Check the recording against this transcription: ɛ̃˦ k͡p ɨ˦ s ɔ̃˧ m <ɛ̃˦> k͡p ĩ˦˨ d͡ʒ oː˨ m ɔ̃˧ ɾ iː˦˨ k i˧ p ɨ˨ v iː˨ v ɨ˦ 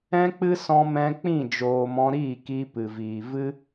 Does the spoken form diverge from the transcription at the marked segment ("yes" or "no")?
yes